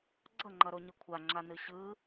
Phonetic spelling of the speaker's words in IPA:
ɡ͡ǀ ʌ ŋ͡ǃ ʌ ɾ o ɲ ɯ kʷʰ a ŋ͡ǁ a n ɯ ɕ ɯ

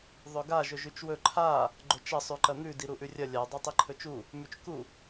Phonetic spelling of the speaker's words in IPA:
ðˤ ɵ ɡ a ʒ ɵ ʒ ʉ t͡ʃ w ɵ ǃʰ a | ɡ͡ǃ ɵ t͡ʃ ɐ sˤ ʉ ǃ ɐ n̪ ʉ d i ɾ u ʔ ʉ rʲ ɐ lʲ a dˤ a tˤ i ǃʰ ɵ t͡ʃ u | m ʉ t͡ʃ k u

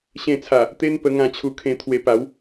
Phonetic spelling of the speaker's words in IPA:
ɕ ẽ˧ t͡sʰ a˨˩ | t̪ e˦ n p ə˧ ŋ ã˧ t͡ɕʰ u˧ kʰ ẽ˧ t̪ʰ w e˧ p a˨˦ w

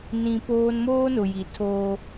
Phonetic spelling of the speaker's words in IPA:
n ĩ˨ p oː˦ n m oː˦ n ʊ˨ j i˨ tʰ oː˦

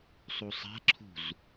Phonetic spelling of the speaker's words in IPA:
sˤ u sˤ a̤ ǁʰ ṳ z

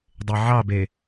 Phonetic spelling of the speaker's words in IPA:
dˤ e ʕ ɑ b e

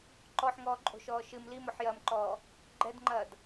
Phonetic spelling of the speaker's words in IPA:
ǃ ɔ ħ ŋ ɔː ǃʼ o̤ ʃ ɔː ʃ ɨ m l i m ɔ ħ j ɐː m ǃ ɔː | ɡ͡ǃ ɛ d ŋ͡ǃ ɐː d

